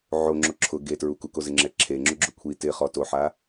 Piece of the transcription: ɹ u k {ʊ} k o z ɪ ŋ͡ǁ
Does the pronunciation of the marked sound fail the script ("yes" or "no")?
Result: yes